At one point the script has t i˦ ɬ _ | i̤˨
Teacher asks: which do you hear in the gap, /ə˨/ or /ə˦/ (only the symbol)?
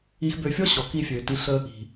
ə˦